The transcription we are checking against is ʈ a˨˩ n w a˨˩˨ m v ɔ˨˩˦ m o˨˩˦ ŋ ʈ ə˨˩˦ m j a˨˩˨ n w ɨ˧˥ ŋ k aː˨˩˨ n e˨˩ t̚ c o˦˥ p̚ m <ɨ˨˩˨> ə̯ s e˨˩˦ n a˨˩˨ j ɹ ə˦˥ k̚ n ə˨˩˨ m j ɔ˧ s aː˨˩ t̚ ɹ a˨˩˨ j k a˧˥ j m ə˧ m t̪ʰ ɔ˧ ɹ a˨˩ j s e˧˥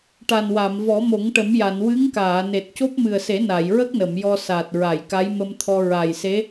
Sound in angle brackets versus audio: incorrect: ɨ˨˩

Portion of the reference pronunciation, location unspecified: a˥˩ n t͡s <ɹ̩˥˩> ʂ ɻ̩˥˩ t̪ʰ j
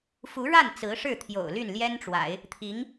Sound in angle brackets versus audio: incorrect: ɹ̩˧˥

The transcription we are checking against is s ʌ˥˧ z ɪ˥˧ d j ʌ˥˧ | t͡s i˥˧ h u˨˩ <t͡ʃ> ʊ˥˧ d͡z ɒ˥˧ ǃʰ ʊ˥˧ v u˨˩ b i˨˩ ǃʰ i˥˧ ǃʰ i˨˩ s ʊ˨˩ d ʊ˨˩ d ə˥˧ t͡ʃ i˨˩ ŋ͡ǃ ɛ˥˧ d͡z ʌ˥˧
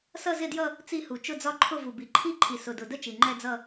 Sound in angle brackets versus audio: correct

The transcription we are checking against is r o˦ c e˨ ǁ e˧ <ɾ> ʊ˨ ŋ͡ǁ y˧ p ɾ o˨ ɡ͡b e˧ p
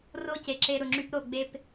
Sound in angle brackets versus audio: correct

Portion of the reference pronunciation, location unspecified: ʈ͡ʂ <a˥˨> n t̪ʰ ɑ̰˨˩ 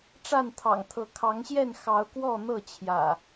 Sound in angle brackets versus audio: correct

